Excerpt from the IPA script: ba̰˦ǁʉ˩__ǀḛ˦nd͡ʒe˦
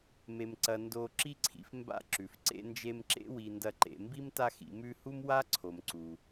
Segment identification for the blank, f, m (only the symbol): f